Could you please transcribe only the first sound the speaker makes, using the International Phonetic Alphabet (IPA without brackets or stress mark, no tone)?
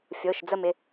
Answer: fʲ